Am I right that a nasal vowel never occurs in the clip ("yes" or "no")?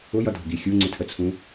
no